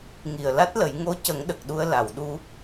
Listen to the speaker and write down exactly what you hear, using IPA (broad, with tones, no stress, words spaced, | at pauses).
ŋi˨˩ə̯la˦˥t̚lə˨˩˦j ŋo˧˥ cə˨˩˦ŋɗə˨˩k̚ ɗu˧ə̯ la˨˩˨wɗu˧